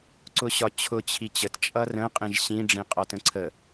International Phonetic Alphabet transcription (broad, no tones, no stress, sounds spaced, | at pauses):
ǀ ʊ ɕ ɒ t͡ɕʰ ʊ t͡ɕʰ i t͡ɕ ə t t͡ʃʼ ʌ r ə̃ qʼ ĩ ʒ ɕ ĩ ɖ͡ʐ ĩ qʼ ɒ t ə̃ ǀʰ ə